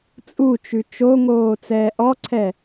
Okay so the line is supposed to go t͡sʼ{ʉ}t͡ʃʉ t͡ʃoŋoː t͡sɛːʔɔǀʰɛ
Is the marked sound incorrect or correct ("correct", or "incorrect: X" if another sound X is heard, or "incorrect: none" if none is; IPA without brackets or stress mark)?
incorrect: u